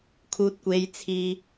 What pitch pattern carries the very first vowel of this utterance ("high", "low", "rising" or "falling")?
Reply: high